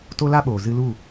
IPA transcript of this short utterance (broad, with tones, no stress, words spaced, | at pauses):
to˦la˦ɓoː˨ zɨ˧lu˦˨